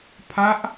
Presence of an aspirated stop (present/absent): present